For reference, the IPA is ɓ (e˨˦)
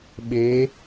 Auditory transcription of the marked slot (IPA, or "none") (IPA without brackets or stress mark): e˨˦